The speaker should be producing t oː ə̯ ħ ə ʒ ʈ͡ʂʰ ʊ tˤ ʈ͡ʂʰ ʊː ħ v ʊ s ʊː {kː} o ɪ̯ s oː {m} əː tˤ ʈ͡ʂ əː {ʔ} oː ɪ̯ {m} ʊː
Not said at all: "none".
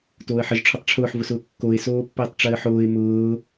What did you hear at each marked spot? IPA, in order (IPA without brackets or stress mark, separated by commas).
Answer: kː, pː, ħ, m